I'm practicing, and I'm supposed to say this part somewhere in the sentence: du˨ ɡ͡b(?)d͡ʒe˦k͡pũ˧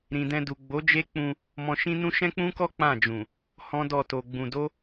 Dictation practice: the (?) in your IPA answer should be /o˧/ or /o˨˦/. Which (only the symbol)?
o˨˦